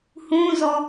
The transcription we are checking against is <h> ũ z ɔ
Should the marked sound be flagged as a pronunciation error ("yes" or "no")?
no